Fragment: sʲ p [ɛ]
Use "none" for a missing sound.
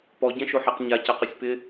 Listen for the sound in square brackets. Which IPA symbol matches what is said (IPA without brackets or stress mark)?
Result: ɪ